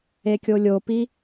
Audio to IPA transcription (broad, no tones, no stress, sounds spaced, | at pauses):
e kʲ o lʲ o p i